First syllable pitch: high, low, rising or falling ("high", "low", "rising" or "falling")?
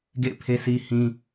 falling